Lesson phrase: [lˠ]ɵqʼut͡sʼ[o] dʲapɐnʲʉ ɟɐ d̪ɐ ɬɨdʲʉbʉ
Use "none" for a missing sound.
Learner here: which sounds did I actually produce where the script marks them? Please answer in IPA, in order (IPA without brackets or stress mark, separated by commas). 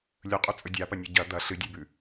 lʲ, ɵ